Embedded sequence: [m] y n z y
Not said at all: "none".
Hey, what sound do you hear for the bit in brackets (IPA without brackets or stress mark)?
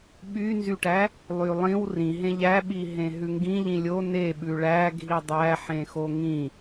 ɓ